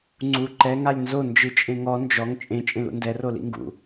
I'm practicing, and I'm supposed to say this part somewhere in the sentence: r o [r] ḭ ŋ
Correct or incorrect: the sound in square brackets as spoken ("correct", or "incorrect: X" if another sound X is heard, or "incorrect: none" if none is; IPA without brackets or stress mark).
incorrect: l